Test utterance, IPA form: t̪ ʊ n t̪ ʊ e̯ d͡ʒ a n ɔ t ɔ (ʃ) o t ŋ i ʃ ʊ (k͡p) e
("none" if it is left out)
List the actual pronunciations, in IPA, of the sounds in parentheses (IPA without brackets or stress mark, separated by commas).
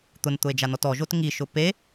ʒ, p